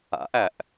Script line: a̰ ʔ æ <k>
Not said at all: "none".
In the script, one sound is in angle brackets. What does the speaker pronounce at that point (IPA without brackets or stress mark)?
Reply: ʔ